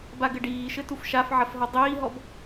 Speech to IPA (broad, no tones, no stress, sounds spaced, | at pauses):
b a ɡ ɘ ɖ iː ʃ ɘ t u f ʃ a f ʕ ɐ f ɦ ɔ dˤ iː ɦ ɔ b